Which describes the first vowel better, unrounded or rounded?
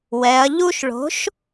unrounded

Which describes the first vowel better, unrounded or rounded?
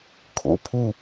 rounded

